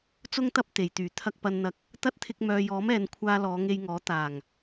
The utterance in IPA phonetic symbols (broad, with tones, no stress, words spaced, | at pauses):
t͡sʊ˥ŋt̪ɐ˥p̚ t̪e˨˩jt̪yː˨˩ t̪ʰɐ˧k̚pɐ˧nn̪ɐ˧k̚ | t̪ɐ˥t̚t̪ʰɪ˧k̚ mœː˨jɔː˨˥mɛː˨n kʷʰaː˧ lɔː˨˧ŋe˧jŋɔː˨˥ t̪aː˨˩ŋ